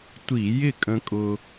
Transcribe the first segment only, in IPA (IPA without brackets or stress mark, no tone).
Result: tʷ